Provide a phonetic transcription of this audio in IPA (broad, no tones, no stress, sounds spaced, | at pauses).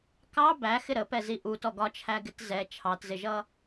k ɑ b æ x ɪ ɾ ə p ɛ z i ʔ u t ɔ ɡ ɒ t͡ʃʰ æ ɡ ɪ t z ɛ t͡ʃʰ ɑ t z ɪ ʒ ʌ